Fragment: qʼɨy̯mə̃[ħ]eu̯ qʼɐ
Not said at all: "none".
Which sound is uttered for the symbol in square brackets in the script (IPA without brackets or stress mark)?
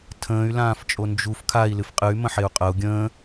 ħ